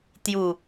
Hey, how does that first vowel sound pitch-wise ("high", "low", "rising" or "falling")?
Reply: falling